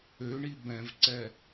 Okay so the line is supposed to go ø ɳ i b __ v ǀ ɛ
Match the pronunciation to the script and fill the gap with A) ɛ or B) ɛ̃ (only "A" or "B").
B